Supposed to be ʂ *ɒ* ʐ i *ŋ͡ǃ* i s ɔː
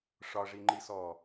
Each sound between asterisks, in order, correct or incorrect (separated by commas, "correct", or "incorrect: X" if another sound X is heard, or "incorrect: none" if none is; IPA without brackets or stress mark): correct, correct